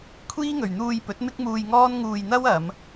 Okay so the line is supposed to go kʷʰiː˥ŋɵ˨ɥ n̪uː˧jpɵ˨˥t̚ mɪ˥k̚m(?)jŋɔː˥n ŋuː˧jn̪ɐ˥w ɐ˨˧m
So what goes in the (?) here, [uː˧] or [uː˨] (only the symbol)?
uː˧